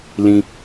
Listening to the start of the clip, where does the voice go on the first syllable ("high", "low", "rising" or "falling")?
low